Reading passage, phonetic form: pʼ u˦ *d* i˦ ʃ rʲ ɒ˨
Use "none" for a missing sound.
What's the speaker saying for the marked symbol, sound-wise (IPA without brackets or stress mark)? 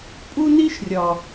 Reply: n